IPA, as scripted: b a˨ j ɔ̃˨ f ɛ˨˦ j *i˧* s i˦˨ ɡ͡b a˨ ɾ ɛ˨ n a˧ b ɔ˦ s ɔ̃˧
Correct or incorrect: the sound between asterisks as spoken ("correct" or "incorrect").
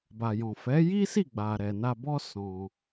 incorrect